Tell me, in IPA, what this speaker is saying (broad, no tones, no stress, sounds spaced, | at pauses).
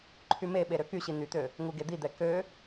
ǃʰ y m e ɓ e ɾ ø k y ɕ i n̪ y t̪ ø | ŋ u ɡ e d̪ i d̪ ɛ k ø